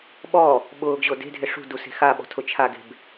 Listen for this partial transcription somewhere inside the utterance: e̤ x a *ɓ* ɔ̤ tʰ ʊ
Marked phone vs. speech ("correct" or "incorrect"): correct